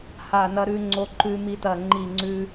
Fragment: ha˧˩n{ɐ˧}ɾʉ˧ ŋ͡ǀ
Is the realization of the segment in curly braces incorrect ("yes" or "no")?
no